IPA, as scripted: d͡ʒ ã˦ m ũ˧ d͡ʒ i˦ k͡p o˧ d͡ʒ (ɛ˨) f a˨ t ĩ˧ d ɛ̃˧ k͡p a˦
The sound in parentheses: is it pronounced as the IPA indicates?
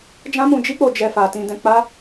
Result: no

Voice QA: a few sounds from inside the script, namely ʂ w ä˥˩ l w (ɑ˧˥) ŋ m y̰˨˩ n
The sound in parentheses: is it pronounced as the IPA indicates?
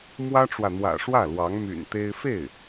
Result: yes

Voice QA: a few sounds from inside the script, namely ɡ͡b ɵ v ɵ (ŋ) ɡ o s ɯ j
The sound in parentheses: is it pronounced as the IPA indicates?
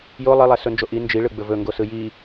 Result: yes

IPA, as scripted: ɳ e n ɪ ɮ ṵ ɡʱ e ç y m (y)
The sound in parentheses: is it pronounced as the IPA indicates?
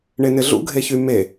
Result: no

